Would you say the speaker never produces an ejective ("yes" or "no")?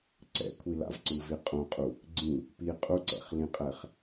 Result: no